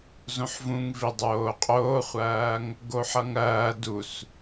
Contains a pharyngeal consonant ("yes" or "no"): yes